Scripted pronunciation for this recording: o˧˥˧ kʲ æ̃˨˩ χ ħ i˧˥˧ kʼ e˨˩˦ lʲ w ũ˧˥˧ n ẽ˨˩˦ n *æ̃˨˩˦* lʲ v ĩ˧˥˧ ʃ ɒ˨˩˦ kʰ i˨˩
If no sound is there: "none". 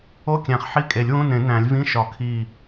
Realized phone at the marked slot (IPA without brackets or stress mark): æ̃˨˩˦